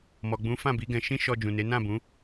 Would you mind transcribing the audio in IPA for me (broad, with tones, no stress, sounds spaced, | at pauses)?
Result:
m ɔ˨ ɡ͡b ũ˨˦ f ã˦˨ b i˨˦ ɡ ɛ̃˧ ʃ ĩ˦ ʃ ɔ˧ d͡ʒ ũ˨ n e˨˦ n ã˦˨ b ũ˨˦